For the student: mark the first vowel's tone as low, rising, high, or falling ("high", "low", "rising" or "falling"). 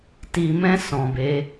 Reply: low